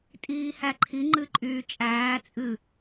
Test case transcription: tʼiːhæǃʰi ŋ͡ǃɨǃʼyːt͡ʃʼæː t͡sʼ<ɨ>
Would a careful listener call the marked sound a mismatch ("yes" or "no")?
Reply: no